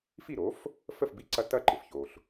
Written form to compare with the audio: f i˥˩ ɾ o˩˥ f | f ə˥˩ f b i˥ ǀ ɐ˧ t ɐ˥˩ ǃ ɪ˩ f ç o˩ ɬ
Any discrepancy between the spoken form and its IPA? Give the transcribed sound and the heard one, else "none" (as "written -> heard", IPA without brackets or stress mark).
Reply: none